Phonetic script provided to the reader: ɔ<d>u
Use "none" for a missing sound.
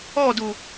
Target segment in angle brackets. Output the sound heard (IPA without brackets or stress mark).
d